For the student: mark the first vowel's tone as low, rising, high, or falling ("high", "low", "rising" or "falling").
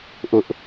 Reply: high